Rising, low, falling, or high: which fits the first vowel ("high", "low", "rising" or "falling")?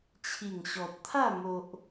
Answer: low